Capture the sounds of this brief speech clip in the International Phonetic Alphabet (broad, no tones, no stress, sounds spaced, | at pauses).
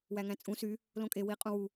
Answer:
w æ ŋ æ̃ t͡sʼ ũ s y | l õ kʼ e w i qʼ ũ w u